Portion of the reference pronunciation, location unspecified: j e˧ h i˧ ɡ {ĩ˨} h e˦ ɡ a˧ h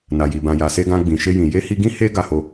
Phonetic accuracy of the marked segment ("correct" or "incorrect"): incorrect